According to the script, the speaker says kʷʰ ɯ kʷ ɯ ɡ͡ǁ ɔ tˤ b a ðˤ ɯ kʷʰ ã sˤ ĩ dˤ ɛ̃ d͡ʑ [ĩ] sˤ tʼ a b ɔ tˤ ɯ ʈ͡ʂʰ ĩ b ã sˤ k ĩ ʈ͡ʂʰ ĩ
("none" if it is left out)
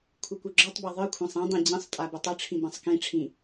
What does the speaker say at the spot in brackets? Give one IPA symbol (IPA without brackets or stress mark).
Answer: ĩ